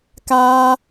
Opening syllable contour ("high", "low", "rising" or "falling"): high